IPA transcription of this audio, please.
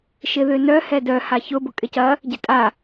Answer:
ʃ ɪ ð ʏ n œ h ɛ d œ h a ç ʊ b ʊ kʼ ɪ c ɐ | ɟ ɪ tʼ a

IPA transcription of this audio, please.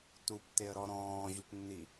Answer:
t u p t e ə̯ ɾ ɔ ɾ ɔ̃ː ʑ u p nː i

